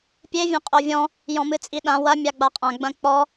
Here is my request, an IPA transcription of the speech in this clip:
pʲe vʲɐ̃qʼovʲɔ̃ | jɔ̃mɨt͡sʼiɗã wɐ mʲaɡ͡baqʼã ɡ͡bɐ̃k͡pɔ

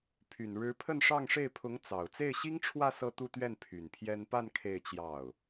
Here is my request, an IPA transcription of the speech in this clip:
pʰy˨˩n ɻɻ̩˧˥pʰə˥˧nʂɑ˥˧ŋʂe˥˩ɪ̯ pʰʊ˧˥ŋ t͡sɑ˨˩ʊ̯ t͡se˥˩ɪ̯ɕi˥ŋʈ͡ʂʰwä˥˧ sɤ˥˧t̪u˥˧t̪ɥɛ˥˩n pʰy˨˩npʰjɛ˥n pa˥˧n kʰe˥˧ɪ̯t͡ɕjɑ˥˩ʊ̯

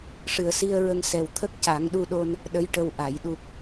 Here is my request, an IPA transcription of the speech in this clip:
ʂɨ˨˩ə̯si˧ə̯ɹə˧ŋ sɛ˨˩wt̪ʰə˦˥k̚ ca˨˩˦ŋɗu˧ɗo˧n | ɗə˧˥jʈə˧w ʔa˨˩˨j ɗu˨˩k̚

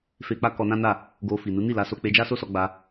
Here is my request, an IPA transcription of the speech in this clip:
fe˨k͡pa˧ kɔ˧nã˦na˦˨ | ɡo˧fi˨ nu˨˦ ni˦˨la˨˦so˧ k͡pe˧d͡ʒa˦so˦sɔ˧ ɡ͡ba˧

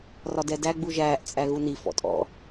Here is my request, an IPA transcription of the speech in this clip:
rɒdɛdæ ɡ͡buʒæːʔ t͡sʼæɣuni fɔ̰tʼɔ̰

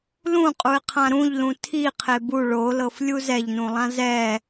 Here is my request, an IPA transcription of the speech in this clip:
lũqʼuɪ̯qʰã ɾũʎlũ tʰiqʰe bu ɭolɤflʲu zɛʎnũlˠã zɛ

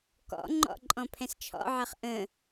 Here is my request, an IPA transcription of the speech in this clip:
kɔ̰ŋ͡ǃɔ̰ ǃʼɔ̃pʰɛ̃st͡ʃʰɔ̰ʕɜχ ʔə̃

